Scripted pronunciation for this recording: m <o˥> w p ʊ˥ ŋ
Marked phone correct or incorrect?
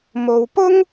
incorrect